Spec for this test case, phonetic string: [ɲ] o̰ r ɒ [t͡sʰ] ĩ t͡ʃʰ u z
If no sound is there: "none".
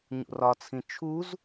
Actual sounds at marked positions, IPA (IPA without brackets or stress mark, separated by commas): ɲ, t͡sʰ